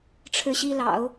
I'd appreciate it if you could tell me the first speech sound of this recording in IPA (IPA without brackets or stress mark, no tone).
ʈ͡ʂʰ